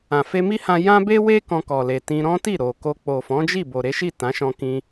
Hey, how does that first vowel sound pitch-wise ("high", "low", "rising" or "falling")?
low